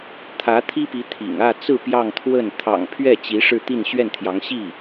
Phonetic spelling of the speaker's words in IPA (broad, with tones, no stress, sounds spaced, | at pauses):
t̪ʰ ä˧˥ t̪ʰ i˥ p i˧˥ t̪ʰ ḭ˨˩ ŋ ä˥˧ t͡s ɹ̩˥˧ p j ɑ˥˧ ŋ t̪ʰ w ə˥˩ n t̪ʰ ɑ̰˨˩ ŋ pʰ ɥ ɛ˥˩ t͡ɕ i˧˥ ʂ ɻ̩˥˧ t̪ i˥˧ n ɕ ɥ ɛ˥˩ n t̪ʰ j ɑ˧˥ ŋ ɕ i˥˩